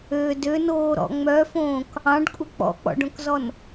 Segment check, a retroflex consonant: present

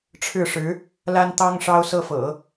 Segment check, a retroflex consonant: present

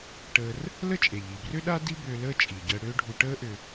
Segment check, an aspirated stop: absent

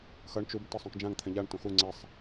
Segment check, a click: present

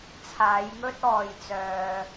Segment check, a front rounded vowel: present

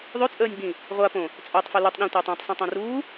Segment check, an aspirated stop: absent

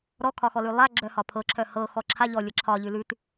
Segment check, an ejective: absent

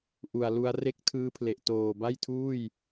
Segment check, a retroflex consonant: absent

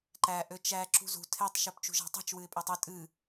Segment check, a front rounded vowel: present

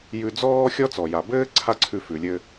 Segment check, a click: present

